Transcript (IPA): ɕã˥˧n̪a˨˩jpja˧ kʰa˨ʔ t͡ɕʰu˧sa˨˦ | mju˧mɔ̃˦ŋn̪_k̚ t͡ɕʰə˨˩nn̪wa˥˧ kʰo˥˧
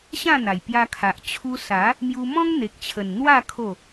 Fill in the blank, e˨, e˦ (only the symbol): e˨